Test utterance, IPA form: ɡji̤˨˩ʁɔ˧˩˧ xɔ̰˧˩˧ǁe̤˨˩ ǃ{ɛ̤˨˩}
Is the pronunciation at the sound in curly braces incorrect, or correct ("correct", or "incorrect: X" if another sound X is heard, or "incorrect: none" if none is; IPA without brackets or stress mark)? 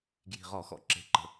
incorrect: ə̤˨˩